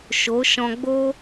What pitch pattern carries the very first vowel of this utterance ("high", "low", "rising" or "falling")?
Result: rising